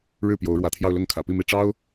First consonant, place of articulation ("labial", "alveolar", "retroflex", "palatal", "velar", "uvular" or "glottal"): retroflex